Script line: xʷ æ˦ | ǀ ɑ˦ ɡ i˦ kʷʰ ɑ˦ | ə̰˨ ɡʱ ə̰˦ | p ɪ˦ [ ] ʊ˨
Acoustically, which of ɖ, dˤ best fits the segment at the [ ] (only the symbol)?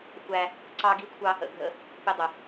dˤ